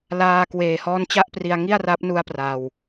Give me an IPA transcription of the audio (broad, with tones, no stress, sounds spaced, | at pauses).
l aː˧ k w eː˨˩ h ɔː˦˥ n t͡ɕ a˥˩ ʔ p r i˧ a̯ ŋ i˥˩ a̯ r a˦˥ p̚ n u˦˥ a̯ p r a˧ w